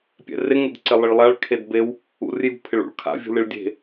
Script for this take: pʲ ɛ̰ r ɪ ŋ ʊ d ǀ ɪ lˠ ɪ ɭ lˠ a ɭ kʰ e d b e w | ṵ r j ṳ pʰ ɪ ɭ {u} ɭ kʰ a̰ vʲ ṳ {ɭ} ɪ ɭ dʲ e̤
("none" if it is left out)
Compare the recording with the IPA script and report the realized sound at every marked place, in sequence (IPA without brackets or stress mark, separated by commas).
ṵ, l